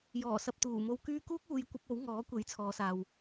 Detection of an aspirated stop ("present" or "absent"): present